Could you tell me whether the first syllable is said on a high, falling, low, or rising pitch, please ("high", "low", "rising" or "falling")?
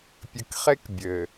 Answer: low